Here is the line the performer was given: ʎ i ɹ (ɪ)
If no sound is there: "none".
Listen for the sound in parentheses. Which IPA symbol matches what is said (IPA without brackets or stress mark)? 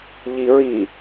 i